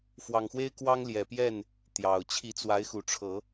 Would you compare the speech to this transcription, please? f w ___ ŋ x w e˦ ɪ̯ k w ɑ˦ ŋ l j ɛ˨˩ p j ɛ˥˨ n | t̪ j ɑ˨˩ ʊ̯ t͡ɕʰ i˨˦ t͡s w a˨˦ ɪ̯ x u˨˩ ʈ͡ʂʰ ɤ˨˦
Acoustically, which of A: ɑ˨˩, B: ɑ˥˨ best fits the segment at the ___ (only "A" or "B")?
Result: A